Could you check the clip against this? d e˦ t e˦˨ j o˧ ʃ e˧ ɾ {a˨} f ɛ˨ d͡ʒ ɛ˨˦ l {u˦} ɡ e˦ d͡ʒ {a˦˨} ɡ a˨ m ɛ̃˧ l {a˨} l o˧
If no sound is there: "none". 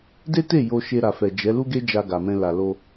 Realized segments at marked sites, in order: a˨, u˦, a˧, a˨

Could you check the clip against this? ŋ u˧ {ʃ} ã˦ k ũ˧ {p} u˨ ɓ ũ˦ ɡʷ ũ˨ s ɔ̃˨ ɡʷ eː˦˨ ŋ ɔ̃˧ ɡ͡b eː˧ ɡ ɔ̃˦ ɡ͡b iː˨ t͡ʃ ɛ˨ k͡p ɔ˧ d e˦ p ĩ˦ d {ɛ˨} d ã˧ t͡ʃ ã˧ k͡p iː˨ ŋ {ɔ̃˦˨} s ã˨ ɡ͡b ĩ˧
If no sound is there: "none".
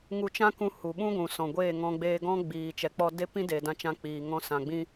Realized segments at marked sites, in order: t͡ʃ, h, e˨, ɔ̃˧

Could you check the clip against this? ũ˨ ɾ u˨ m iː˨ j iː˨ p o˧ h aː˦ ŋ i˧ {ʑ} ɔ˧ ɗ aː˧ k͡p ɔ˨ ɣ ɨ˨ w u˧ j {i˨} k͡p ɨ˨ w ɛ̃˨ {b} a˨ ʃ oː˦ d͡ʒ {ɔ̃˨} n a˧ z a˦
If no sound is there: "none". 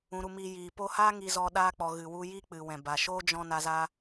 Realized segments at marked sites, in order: z, i˦, b, ɔ̃˧

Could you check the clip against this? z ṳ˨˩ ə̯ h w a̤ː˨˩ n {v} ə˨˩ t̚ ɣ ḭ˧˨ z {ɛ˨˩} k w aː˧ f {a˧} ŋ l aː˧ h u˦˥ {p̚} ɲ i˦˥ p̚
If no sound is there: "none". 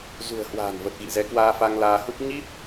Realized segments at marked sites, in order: v, ɛ˨˦, a˧, p̚

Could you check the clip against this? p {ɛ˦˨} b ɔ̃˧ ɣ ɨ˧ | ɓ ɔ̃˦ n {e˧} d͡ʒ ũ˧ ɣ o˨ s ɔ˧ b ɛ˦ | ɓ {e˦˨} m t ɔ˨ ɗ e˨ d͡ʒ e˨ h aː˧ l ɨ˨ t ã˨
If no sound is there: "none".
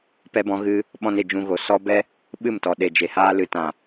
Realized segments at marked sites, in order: ɛ˧, e˧, ɨ˦˨

